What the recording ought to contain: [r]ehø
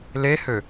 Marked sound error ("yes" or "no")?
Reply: yes